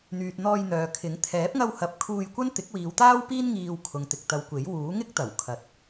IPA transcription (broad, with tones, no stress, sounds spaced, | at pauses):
n̪ yː˨ t̚ n̪ ɔː˧ j n̪ œː˨ kʰ ɪ˨˥ ŋ t̪ʰ ɛː˨˥ p̚ ŋ ɐ˧ w h ɐ˨˥ p̚ kʰ uː˧ j kʷ ɐ˥ n t̪ ɪ˨˥ k̚ w iː˨˧ w t̪ aː˥ w p iː˥ n ŋ iː˧ w kʰ ʊ˨ ŋ t̪ ɪ˨ k̚ t̪ ɐ˨˧ w kʷ e˨˥ j w uː˨˥ ŋ ɪ˥ k̚ t̪ ɐ˨˩ w kʰ ɐ˨˥ t̚